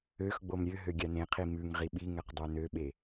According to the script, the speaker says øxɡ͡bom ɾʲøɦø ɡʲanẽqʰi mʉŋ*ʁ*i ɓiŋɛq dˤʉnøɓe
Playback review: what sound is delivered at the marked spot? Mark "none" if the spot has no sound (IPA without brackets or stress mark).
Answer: ʁ